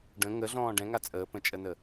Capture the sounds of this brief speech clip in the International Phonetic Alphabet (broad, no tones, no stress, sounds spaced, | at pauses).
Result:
ɖ ə̃ ŋ ə ɮ ɔ̃ː ɖ ɛ̃ ŋ a t͡sʼ əː p ə̃ t͡ʃʼ ə n ə